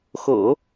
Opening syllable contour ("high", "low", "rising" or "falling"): low